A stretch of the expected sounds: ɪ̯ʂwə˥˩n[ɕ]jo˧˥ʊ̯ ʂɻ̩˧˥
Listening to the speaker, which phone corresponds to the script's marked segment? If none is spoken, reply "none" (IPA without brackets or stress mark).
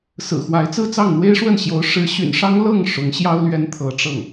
ɕ